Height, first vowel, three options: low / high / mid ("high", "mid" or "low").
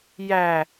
low